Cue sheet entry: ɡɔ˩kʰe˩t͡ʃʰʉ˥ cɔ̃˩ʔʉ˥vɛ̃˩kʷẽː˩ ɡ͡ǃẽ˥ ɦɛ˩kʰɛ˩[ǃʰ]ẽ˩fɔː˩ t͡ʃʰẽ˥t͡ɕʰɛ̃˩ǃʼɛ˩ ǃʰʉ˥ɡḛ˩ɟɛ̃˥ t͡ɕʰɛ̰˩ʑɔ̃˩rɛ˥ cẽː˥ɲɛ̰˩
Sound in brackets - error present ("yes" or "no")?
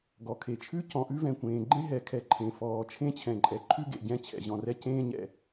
no